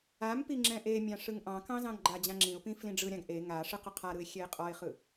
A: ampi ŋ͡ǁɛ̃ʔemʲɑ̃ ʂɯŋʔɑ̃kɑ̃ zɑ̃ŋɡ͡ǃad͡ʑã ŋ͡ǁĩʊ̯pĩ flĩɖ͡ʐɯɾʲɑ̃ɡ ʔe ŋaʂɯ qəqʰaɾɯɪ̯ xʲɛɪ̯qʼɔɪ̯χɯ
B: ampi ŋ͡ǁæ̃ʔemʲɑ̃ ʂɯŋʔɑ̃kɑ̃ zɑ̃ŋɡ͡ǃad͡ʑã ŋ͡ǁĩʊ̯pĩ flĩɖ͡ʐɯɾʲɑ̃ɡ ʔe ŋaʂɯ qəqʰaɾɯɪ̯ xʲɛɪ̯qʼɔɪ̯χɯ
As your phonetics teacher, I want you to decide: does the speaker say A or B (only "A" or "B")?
A